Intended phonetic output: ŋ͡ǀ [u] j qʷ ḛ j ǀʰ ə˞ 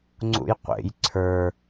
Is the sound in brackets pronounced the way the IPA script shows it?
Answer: no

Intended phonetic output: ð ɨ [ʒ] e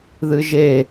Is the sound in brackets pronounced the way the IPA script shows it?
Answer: yes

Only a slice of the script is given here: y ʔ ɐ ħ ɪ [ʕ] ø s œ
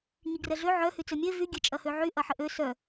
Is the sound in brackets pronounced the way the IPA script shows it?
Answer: no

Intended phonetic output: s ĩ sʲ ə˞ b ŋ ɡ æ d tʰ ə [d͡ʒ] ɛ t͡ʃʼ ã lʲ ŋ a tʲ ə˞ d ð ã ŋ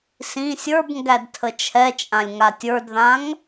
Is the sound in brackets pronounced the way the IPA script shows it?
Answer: no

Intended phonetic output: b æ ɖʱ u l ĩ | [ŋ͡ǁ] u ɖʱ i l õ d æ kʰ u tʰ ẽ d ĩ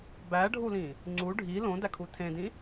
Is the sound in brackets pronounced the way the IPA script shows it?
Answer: no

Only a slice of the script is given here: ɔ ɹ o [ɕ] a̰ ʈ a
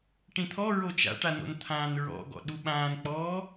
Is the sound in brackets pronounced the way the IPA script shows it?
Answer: no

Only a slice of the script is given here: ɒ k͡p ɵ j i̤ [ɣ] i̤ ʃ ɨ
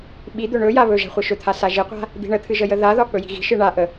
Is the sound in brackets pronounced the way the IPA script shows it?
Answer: yes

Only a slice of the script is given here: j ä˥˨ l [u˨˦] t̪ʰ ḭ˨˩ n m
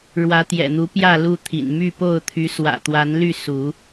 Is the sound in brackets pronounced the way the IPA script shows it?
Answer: no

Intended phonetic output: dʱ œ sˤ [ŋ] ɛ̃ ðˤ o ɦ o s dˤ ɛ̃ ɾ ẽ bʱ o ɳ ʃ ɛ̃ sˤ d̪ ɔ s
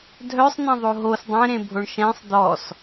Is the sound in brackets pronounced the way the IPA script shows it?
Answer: no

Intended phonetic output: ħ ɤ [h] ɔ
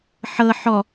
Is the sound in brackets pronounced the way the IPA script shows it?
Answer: no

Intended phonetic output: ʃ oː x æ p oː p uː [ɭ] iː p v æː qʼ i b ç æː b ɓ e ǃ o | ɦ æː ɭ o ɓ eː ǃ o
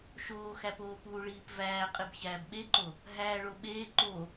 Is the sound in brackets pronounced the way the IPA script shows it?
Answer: yes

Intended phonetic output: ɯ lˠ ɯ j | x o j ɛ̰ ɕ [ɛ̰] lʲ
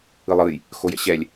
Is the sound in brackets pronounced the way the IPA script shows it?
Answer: no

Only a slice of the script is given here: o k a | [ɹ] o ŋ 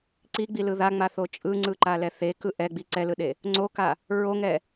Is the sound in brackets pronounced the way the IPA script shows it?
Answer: yes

